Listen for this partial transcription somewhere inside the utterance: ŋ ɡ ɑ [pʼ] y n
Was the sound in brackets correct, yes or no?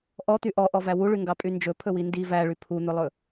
yes